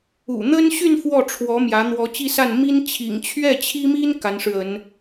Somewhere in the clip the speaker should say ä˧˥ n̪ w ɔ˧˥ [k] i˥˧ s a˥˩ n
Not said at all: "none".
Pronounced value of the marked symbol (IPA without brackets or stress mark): t͡ɕ